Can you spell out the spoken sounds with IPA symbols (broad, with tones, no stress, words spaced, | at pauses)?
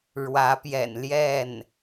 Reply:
ɻwä˧˥pjɛ̰˨˩n ljɛ˥˩n